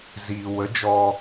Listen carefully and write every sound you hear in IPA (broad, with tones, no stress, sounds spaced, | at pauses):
z iː˨ w ə˨˦ d͡ʒ ɔ˧